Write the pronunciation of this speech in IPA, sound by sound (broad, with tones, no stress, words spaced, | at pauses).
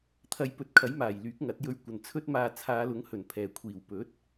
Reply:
t̪ʰɐ˨˧jpɵ˨˥t̚kʰɐ˨˥jmaː˨˩j lyː˨˥k̚ŋɐ˨˥t̚jɵ˧ɥ kʷɐ˨˩nt͡sʰɵ˥t̚maː˧ t͡sʰaː˨˧lʊ˨˥ŋhɵ˨˩n pʰɛː˨˩kʷʰiː˨˩w pɵ˨˥t̚